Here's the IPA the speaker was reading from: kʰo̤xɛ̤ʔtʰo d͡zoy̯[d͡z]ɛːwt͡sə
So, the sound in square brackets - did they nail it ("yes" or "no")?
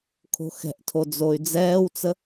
yes